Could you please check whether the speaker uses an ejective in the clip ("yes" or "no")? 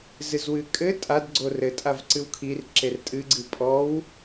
yes